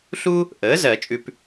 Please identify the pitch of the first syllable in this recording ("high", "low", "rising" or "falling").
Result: high